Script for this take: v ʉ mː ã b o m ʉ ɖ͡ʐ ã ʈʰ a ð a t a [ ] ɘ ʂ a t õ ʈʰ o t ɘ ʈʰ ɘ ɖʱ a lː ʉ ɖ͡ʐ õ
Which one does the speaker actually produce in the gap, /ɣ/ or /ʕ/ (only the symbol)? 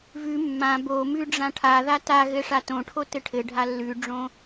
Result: ɣ